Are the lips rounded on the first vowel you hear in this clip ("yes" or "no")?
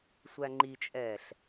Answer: no